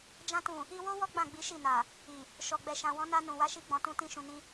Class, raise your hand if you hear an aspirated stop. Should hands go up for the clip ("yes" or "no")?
no